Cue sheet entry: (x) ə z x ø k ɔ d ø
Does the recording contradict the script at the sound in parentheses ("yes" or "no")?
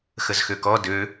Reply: no